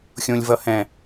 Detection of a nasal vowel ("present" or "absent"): present